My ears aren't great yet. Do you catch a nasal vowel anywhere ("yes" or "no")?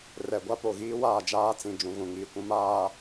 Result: yes